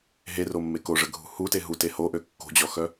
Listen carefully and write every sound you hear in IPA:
ɦ e r o mː e k o ʐ ə ɡʱ ṳ h u t e ɦ u t e h o ʔ ø kː o̤ d͡ʑ ɔ x œ

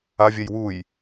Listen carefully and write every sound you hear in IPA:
a vʲ ɛ j w u j

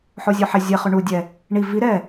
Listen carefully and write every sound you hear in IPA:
ħ o zʲ ɔ ħ e zʲ e χ ʉ ɳ u dʲ ɛ | ɳ i v i ɾ ɛ

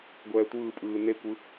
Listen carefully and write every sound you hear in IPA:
ɡʷ ɛː tʷ ɯː pʼ ɯː n e kʷ ɯ

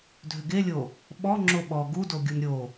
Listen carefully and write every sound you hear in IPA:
dʱ ʏ ɡ e lʲ o | ɓ ɔ ŋ͡ǁ o ɓ ɔ ɡ u d o ɡʲ u n ɾʲ o

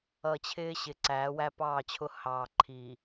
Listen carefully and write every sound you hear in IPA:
ʌ˨ t͡ɕʰ ɪː˦ ɕ ɪ˨ ǀ æː˨˦ w æ˦ p ɑː˦˨ t͡ɕʰ ʊ˦ h ɑː˨ ǃʰ i˨

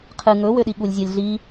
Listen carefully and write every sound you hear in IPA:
qʰ ɨ ŋ ɵ w ø ɗ i ɠ u lʲ zʲ ɒ lʲ ɮ i

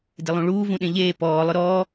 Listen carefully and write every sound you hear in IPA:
d ɪ lˠ ũ ɭ uː v ũ ɗ ẽ ʎ eː p ɔː lˠ ʊ ɾ ɔː

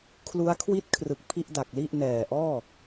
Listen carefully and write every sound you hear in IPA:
kʰ l u˦˥ a̯ kʰ w i˥˩ t̚ kʰ r ɯ˨˩ k̚ pʰ i˥˩ ʔ d a˨˩ k̚ l i˥˩ ʔ n ɛː˨˩ ʔ ɔː˥˩

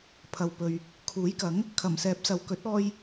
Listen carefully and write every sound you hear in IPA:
pʰ ɐ˨ w p ɵ˨ ɥ | kʰ uː˨˥ j k ɐ˨˥ ŋ | kʰ ɐ˨˩ m s ɛː˨˥ p̚ s ɐ˨ w k ɵ˨˥ t̚ ɔː˧ j

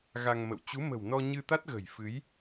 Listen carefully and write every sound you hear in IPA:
ɣ a˧ ŋ m ə̰˧˨ w t͡ɕ u˨˦ m ə̤˨˩ w n ɔ˧ ɲ ɨ˧ t̪ a˦˥ t̚ ɣ ə̤˨˩ j f ɨ˨˦ j

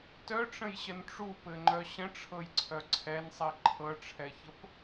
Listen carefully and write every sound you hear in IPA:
t œ ʈ͡ʂ ə̃ j ɕ ə n ʈ͡ʂ u p ɘ ŋ͡ǃ œ ɕ ə̃ ʈ͡ʂʰ ɤ j ǀʰ œ ǀʰ ɛ n sˤ i ǃʰ ɤ ʈ͡ʂʰ ɛ ç ə p

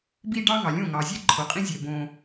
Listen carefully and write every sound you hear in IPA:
b i˦ ɖ ɑ˦ ŋ ɑ˨ lʲ õ˦˨ ŋ ɑ˨ zʲ ɛ˦ ǃʰ o˨ qʼ ĩ˦ zʲ ɛ˨ b õ˦

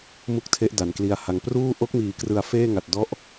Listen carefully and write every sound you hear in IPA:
m u˥˩ k̚ tʰ e˦˥ ʔ d a˩˦ n k l i˧ a̯ h a˧ ŋ p r uː˥˩ ʔ o˦˥ k̚ m iː˩˦ k r ɯ˨˩ a̯ f eː˥˩ ŋ a˨˩ t̚ d ɔ˥˩ ʔ

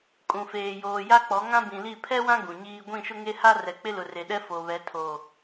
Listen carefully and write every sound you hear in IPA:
kʼ ũ˨ f eː˨ j oː˨ j a˦ k͡p ɔ˨˦ ŋ ã˦ b ĩ˨ l i˦˨ pʰ ɛ˦ w ã˦ ɡ ũ˨ ɲ iː˦ ɡʷ ĩ˦˨ ʃ ʊ˦ ŋ e˦ h a˦ r ɛ˨ k͡p ɪ˦ l ʊ˨ r e˨ ɗ ɛ˦ f o˨ β ɛ˨˦ tʰ o˨

